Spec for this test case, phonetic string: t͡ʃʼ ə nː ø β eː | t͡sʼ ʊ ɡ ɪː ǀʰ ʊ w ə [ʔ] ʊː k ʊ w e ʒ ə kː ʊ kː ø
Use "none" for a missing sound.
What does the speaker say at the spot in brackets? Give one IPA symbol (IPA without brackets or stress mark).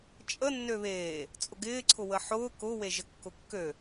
ħ